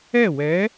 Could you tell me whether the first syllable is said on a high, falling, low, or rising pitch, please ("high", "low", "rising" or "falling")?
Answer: falling